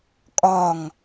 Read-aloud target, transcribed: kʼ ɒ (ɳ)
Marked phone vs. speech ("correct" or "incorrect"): incorrect